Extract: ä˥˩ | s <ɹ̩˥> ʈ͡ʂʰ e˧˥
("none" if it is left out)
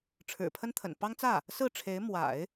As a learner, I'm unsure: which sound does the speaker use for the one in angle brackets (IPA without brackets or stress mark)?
ɹ̩˥˩